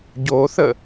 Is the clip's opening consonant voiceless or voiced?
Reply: voiced